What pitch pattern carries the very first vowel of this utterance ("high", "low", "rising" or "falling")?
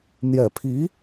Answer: low